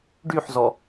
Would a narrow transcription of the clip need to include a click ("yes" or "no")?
no